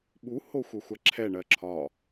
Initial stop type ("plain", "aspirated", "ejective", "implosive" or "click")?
implosive